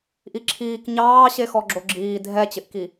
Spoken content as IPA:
ʔ i ǁʰ iː k ɲ ɑː ɕ e x ɔ ɡ͡ǁ o ɡ͡ǁ iː dʱ ɛ t͡ɕ ɪ ʔ k i

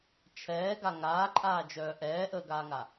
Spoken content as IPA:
t͡ʃʰ ɛː ɡ a ŋ aː ǃʼ aː d͡ʒ œː ʔ ɛː ʔ əː ɡ aː ŋ a

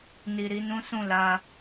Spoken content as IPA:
n i˨ ɾ i˧ n ũ˦ s ũ˦˨ l a˧

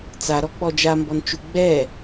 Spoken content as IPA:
t͡s a ɾ ɔ k͡p ɔ d͡ʒ a m b ɔ n t͡ʃ u ɡ͡b ɛ

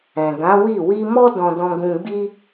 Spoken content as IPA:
ɛ̃˨ ɡ ã˨˦ w i˦˨ w i˧ m ɔ˦ d ɔ̃˧ d ɔ̃˧ ɡ ũ˧ ɡ͡b i˦

